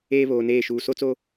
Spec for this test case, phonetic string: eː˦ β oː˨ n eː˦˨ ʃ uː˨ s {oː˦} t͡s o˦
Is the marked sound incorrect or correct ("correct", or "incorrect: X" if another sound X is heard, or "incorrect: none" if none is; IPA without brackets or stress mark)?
incorrect: o˦